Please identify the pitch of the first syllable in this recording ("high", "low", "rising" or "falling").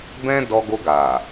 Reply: high